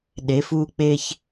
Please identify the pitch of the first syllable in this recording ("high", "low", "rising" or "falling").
rising